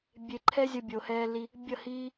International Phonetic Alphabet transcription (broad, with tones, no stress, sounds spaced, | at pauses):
bʲ e˧ ǃʰ ɛ˦ zʲ ʌ˧ bʲ o˨ h ɛː˧ l i˧ | bʲ ʌ˦˨ h iː˦